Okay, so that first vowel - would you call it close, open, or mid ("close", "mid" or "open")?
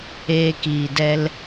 mid